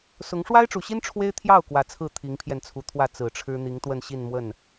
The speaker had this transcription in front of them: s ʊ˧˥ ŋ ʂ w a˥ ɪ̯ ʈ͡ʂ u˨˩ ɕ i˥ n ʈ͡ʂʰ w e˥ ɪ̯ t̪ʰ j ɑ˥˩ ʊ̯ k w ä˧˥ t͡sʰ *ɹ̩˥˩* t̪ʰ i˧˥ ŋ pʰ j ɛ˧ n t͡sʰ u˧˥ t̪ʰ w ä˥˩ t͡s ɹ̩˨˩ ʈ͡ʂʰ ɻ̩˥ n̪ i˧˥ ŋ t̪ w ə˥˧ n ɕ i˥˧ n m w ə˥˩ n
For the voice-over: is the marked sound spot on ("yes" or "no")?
yes